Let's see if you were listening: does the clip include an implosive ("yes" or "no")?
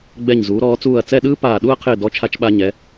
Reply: yes